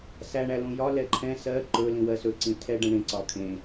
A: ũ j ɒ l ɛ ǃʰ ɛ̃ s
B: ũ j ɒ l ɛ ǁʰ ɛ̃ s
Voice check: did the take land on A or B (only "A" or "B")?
A